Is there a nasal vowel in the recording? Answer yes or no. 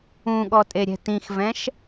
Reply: yes